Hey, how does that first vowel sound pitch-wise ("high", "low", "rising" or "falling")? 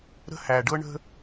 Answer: high